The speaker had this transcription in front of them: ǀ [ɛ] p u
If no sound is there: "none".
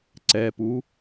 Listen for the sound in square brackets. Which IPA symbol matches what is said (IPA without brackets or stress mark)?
ɛ